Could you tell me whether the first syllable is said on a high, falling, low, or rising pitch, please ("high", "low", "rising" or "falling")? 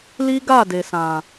high